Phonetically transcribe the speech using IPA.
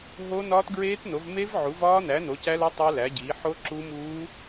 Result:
ɦo˦˥ nɒː˦˥tɡɹeː˦˥tno˨˥v me˦˥v ʕu˨˥vɒː˦˥næ˨˥ no˨˥cæ˦˥lo˦˥ tˤæ˦˥læ˨˥ɟiː˨˥ ħo˦˥ǁu˦˥muː˦˥

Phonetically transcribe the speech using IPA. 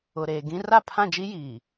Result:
ʊ˨ɾeː˨ ɡĩ˦ ra˦˨pʰã˦˨d͡ʒi˦ jiː˨

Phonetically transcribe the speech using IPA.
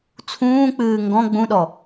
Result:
t͡sʰũːk͡pɨː ŋɡɔ̃ ɡ͡bũɗɔ

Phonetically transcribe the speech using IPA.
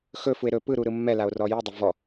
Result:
xɵfue̯ ɾɵ pɯɾu ɾɯmːɛlao̯ rɔjɯdˤʊ vɔ

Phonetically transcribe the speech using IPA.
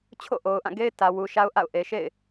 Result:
t͡ɕʰo̰˦˨ʔo˨ʊ̯ʔã˦˨ɡe˦ɪ̯ tä˨wu˨ʃa˦ʊ̯ ʔa̰˦˨ʊ̯ʔe˨ʃḛ˦˨ɪ̯

